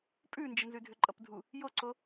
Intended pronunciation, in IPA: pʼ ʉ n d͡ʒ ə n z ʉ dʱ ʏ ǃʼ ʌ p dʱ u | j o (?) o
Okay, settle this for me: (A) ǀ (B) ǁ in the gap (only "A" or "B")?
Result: A